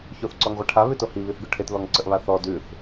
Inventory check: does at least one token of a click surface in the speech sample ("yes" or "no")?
yes